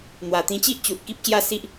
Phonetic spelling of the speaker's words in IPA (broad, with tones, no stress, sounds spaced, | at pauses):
n̪ w a˨˩ t̪ ĩ˧ t͡ɕ i˦ ʔ t͡ɕ u˨ t̚ k i˦ p̚ ɕ j a˦ s i˦ ʔ